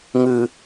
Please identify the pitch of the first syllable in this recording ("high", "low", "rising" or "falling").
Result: low